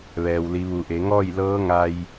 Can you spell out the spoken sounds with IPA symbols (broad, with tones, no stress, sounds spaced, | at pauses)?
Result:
ʋ ɛː˩ w l i˩˧ ʋ u˩˧ ʔ e˩˧ ŋ ɔː˥˨ j l ɤː˧˥ ŋ a˧ j